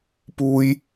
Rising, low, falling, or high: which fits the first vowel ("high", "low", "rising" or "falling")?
high